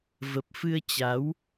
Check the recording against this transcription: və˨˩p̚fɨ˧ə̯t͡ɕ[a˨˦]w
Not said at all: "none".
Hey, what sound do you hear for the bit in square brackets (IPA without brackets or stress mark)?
a˨˦